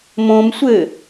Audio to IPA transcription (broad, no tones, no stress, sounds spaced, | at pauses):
m õ m sʷ ɘ